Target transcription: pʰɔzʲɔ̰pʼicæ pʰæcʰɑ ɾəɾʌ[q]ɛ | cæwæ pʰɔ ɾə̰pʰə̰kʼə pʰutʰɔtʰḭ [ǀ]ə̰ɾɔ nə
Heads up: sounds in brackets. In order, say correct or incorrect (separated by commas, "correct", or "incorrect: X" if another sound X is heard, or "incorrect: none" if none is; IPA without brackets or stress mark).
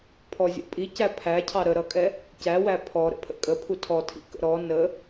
incorrect: kʼ, incorrect: k